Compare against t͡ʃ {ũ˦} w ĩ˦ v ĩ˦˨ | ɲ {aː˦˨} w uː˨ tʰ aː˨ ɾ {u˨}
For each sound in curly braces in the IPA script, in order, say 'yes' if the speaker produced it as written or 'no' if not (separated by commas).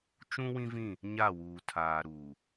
yes, no, no